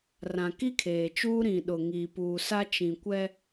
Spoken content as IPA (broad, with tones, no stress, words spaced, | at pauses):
rã˨ki˦kʰeː˨t͡ʃuː˦ ɾĩ˨ɗʊ˨ ŋiː˨puː˨sa˦ t͡ʃĩ˨kʷɛ˦